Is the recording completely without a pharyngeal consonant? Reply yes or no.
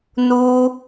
yes